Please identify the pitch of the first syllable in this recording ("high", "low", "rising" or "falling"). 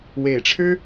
low